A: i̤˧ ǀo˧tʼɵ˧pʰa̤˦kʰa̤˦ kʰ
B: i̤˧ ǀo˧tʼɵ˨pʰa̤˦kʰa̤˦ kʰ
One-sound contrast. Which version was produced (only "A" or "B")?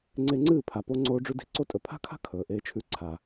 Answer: B